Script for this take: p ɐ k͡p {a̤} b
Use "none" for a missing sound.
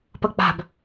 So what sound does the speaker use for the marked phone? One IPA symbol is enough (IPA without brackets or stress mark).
a̤